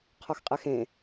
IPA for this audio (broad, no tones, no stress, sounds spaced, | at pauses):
qʰ ɔ x qʼ ɛ x ẽ